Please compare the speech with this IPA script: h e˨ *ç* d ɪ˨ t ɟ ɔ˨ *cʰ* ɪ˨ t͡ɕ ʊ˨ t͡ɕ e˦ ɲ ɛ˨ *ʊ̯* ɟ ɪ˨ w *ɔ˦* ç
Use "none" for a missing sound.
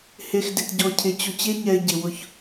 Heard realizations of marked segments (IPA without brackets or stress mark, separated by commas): x, cʰ, ɪ̯, ʊ˦